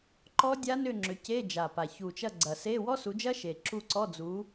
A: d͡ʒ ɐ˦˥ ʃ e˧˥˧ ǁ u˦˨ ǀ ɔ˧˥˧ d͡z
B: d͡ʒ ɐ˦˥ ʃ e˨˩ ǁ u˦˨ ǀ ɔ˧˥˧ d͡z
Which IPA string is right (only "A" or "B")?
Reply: B